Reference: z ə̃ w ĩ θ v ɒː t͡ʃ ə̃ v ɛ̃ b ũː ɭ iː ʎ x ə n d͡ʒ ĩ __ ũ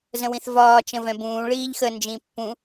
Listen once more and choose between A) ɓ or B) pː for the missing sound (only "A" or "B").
B